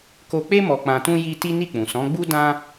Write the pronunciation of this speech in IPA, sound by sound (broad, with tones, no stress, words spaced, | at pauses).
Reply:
ko˧k͡pe˦ mɔ˧k͡pã˧tũ˦ ji˧ ti˦ ni˦˨k͡pũ˨ sɔ̃˨˦ɡ͡bu˦ dã˧